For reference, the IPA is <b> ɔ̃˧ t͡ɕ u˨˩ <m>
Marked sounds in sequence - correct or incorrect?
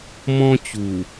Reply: incorrect, incorrect

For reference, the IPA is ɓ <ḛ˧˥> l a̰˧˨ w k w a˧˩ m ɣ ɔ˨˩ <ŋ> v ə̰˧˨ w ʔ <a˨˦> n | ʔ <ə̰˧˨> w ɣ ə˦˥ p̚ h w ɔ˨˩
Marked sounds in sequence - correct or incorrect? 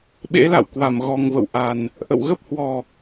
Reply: correct, correct, incorrect, correct

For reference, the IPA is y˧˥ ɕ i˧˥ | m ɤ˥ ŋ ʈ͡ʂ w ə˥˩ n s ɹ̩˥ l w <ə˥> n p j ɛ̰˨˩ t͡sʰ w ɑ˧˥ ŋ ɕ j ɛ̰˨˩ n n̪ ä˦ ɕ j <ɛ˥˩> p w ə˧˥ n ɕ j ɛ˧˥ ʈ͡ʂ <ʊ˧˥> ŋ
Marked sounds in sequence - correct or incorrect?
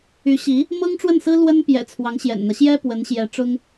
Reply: correct, incorrect, incorrect

